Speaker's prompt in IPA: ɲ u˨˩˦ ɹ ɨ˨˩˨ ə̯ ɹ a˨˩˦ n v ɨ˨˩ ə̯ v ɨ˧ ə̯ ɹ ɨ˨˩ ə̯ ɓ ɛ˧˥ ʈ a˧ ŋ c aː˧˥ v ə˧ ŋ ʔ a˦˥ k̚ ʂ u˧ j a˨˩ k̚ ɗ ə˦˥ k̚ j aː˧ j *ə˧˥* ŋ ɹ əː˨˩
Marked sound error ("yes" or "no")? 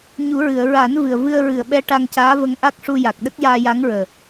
yes